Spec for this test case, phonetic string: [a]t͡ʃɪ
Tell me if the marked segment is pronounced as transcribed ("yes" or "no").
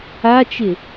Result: yes